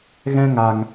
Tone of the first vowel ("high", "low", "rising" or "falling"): high